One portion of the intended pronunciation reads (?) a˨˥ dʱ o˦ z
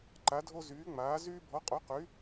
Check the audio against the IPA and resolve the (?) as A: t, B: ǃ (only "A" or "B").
B